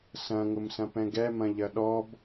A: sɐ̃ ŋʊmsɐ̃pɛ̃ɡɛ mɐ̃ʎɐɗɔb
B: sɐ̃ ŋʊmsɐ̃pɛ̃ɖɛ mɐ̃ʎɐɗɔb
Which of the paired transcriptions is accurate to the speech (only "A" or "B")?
A